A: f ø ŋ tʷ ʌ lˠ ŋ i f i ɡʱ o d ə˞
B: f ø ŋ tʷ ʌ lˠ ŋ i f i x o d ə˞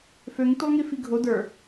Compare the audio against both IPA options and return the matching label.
A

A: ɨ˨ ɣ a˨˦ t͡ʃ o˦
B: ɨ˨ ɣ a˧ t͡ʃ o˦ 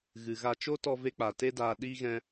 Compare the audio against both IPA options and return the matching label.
B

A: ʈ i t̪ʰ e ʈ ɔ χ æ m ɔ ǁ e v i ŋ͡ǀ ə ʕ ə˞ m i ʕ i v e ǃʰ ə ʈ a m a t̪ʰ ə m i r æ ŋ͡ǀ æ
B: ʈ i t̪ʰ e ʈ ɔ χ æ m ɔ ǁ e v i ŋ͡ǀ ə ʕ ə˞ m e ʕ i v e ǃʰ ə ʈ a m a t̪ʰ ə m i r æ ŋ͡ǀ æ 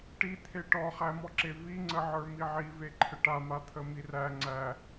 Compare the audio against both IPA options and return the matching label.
A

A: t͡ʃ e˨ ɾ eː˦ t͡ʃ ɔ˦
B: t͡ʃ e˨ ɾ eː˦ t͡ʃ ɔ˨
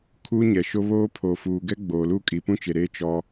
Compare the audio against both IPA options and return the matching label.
A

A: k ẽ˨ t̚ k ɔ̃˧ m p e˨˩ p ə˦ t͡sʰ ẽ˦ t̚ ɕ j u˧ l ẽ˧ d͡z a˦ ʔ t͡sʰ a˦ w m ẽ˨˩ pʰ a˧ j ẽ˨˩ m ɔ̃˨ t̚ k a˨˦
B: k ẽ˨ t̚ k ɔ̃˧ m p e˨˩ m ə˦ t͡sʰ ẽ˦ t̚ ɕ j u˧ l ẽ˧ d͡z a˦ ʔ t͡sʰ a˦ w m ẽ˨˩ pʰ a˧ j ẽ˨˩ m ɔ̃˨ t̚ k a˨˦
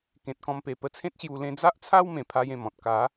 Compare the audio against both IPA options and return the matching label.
A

